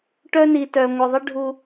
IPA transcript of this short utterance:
ʈœ˥ni˧tœ˧ ŋʷə˧ðˤə˥ ɖʱu˥

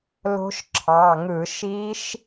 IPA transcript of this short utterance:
lo̤˦˥ʃǁʰɑ˩˧˩ŋɯ˧˩˧ ʃi˦˥ʃ

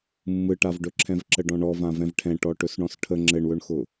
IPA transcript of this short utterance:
mːɯʈavɖɵ ǁʰɛ̃vǁəɖɔ̃ɳɔ vãvɛ̃vʈʰɛ̃ ʈɔʈɵsɳɔ̃sʈʰə ŋ͡ǁɘɳwɵɳxʊ

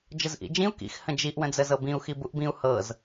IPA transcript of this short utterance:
d͡ʒəzʔḭd͡ʒĩu̯ kḭx hə̃d͡ʒiʔ wə̃d͡zəzɤbĩu̯ xibuʔbĩu̯ hɤz

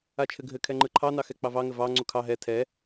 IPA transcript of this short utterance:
at͡ʃʰɘɡʱɘ kʰɛŋ͡ǃɯǃʰɑ nɑxɛk͡pɑvɑ ŋɘvɑ ŋ͡ǀukʰɑ ɦɛ tʰɛ

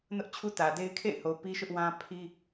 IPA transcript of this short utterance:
nʊ˦ʔt͡ɕʰu˦tä˨de˦ɪ̯ kʰḛ˦˨ɪ̯ho˨ pi˦ʃʊ˦ʔwã˦ pʰi˦

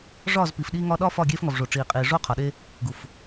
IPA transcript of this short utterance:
ʐɒː˦˨zpiː˨fɗiː˦ŋɒː˦ ɗɒː˦ fɒː˦˨ɡʲeː˦fŋɒ˨vʐo˨ ʈ͡ʂiː˨qʼiː˨ ʐoː˦qʰɒ˨ɗe˦ | ɡu˨f

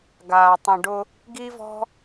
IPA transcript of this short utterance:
ɡaː˧tˤə̃˧ɖʊ˦ | ɡi˦vɔ̤˦

